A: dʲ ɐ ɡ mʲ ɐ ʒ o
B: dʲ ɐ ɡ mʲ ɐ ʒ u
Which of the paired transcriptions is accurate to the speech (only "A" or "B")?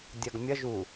B